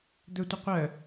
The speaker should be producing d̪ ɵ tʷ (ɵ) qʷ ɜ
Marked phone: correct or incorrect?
incorrect